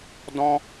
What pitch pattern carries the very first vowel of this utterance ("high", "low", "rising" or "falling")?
high